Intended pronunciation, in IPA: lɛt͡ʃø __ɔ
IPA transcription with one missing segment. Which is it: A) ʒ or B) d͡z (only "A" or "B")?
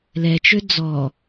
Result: B